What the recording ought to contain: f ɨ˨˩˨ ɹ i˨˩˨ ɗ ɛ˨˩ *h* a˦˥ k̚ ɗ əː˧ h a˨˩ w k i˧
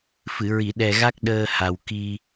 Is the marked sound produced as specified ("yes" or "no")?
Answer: no